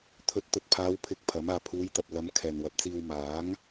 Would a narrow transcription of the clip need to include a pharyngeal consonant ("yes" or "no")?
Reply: no